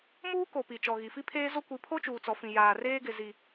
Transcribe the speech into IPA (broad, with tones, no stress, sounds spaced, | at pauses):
m uː˦ k o˨ p i˨ t͡ʃ ɔ˨ ɣ i˨ f i˦ pʰ eː˦ z o˦ kʷ i˨˦ pʰ o˦ t͡ʃ uː˨ t͡s ɔ˨ f ĩ˨ j aː˨ r eː˦ ɡ ɪ˨ z i˨